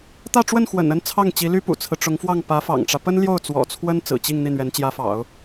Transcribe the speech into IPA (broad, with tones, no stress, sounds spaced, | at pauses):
t̪ ä˥˧ ʈ͡ʂ w ə˥˩ n x w ə̰˨˩ n ə˥ n t͡sʰ ɑ˥˩ ŋ t͡ɕ i˧˥ l y˥ p ṵ˨˩ t͡sʰ ɹ̩˦ ʈ͡ʂ ʊ˧˥ ŋ f w ɑ˥˩ ŋ p ä˧˥ f ɑ̰˨˩ ŋ ʈ͡ʂ ä˦ p ə˥ n l j o˥˩ ʊ̯ t͡s w ɔ̰˨˩ t͡sʰ w ə˥ n t͡s ɹ̩˨˩ t͡ɕ i˥˧ ŋ n̪ i˥˩ n̪ ɥ ɛ˧˥ n t͡ɕ j ä˧˥ f ɑ̰˨˩˦ ʊ̯